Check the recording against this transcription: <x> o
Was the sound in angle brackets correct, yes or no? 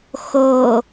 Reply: yes